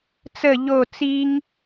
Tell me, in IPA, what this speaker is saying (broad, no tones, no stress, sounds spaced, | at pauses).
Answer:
t͡s ə ʎ o t͡s i ŋ